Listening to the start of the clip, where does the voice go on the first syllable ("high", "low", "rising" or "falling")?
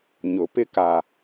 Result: rising